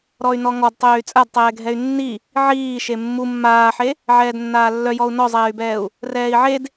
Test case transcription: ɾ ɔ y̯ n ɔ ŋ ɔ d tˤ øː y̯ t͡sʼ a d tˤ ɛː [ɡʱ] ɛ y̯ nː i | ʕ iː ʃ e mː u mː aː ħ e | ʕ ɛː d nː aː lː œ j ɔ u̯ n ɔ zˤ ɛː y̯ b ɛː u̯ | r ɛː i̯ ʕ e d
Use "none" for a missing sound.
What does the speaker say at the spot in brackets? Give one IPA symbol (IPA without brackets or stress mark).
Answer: ɡʱ